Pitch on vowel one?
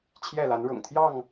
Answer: falling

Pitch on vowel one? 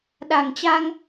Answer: low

